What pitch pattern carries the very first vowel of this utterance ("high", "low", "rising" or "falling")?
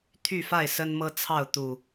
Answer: falling